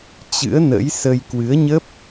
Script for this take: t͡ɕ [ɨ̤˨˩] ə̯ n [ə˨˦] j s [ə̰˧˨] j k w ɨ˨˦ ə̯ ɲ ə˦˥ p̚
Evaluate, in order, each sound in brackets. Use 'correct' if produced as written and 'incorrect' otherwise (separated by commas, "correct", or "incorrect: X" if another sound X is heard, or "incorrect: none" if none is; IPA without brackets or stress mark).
incorrect: ɨ̰˧˥, incorrect: ə̰˧˥, incorrect: ə˧